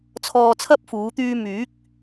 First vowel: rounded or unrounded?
rounded